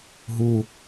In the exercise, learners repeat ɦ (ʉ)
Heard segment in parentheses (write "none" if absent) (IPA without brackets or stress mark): u